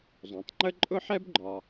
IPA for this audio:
zˤ õ˩ tˤ ŋ͡ǃ ə˥ ǃʼ ʊ˥ ħ ɛ˥ b ɡ͡ǃ ɒ˩

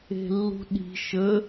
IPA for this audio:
e̤ lː ṳ ɗ i̤ ʃ ə

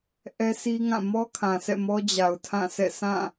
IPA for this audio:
ʔ ɛ˦ s i˦ ŋ ã˦˨ m ɔ˦ kʰ ã˨ sʰ ɛ̰˦˨ m ɔ˦ d͡ʑ a˨ ʊ̯ tʰ ã˦˨ sʰ ɛ̰˦˨ s ã˦˨

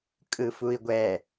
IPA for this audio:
kʼ ɯ f u i̯ ɡʷ ɛ

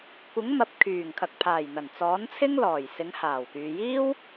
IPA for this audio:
kʷ ɪ˨˥ ŋ m ɐ˨ p̚ kʰ yː˨˩ ŋ kʰ ɐ˨ k̚ pʰ aː˨˩ j n̪ ɐ˨˩ n t͡s ɔː˨˥ n t͡sʰ ɪ˥ ŋ l ɔː˨˩ j s ɪ˨˧ ŋ h aː˨˩ w k yː˨ j iː˥ w

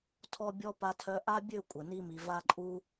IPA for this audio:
tʰ ɔ˧ bʲ ɔ˧ p a˧ tʰ œ˧ ʔ a˦ bʲ ø˦˨ kʷʼ ə˨ n i˧ m i˨ v a˧ ǃʼ u˧

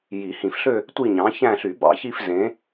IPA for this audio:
j i˨˩˦ h ĩ˨˩˦ f ɬ ø˥˧ | tʷ i˥˧ ɲ ɑ̃˨˥ ç æ̃˥˧ ɬ y˨˩˦ b ɑ̰˨˥ ç i˥˧ f z ẽ˨˥

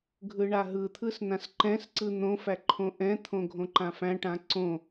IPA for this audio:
ɡʱ ɯ ɳ a ɦ ɯ t̪ʰ ɯ s n ã s ǃ ɛ̃ s ǀ ɯ n̪ õ f æ ǃʰ õ ʔ ɛ̃ t̪ʰ õ ɡʱ õ ǃ ã f æ̃ ʈ ã ǀ õ

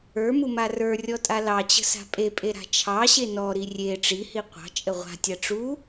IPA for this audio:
ə˞ m u m a r ə˞ rʲ ɔ tʼ a l ɑ t͡ɕ ə̤ s a̤ pʼ e pʼ e ɾ a̤ t͡ʃʰ ɑ ɕ e n ɔ ɾ i rʲ e ʈ͡ʂ i h i qʷ ɑ̤ t͡ʃʼ ə ʁʷ a̤ tʲ a ʈ͡ʂ u

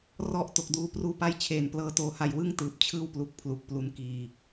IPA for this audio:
r ɔ˥˩ ʔ t o˨˩ k̚ d uː˧ p r uː˧ p a˦˥ j t͡ɕʰ eː˨˩ n p l ɤː˦˥ t oː˦˥ h a˧ j w ɯ˥˩ ŋ t ɯː˨˩ p̚ t͡ɕʰ ɯː˥˩ w p l u˦˥ k̚ pʰ l u˨˩ k̚ p l u˦˥ n k iː˧

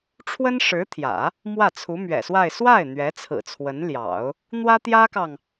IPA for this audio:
ʈ͡ʂʰ w ə˥ n ʂ ɻ̩˧˥ t̪ʰ j ä̰˨˩˦ | m w ä˥˩ t͡sʰ u˧˥ m ɥ ɛ̰˨˩ s w a˥˧ ɪ̯ s w a˥˩ ɪ̯ n̪ ɥ ɛ˧˥ t͡sʰ ɹ̩˨˩ t͡sʰ w ə˧˥ n l j ɑ̰˨˩˦ ʊ̯ | n̪ w ä˥ t̪ j ä˥ k ɑ˨ ŋ

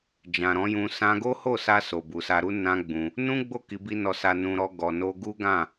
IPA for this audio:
d͡ʒ ã˨ ɾ ɔ̃˨˦ j ũ˧ s ã˧ ɡ o˦ h o˦˨ s a˧ s o˨ b u˨ s a˧ ɾ u˦ n ã˦ ɡ͡b ũ˧ | n ũ˦ ɡ͡b o˦˨ k i˧ b i˦ n ɔ˧ s a˧ n ũ˧ ɾ ɔ˧ ɡ ɔ˨ n o˧ ɡ u˦ ɡ ã˦˨

